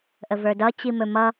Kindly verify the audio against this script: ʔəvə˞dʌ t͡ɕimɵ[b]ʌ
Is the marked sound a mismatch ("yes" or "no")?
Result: yes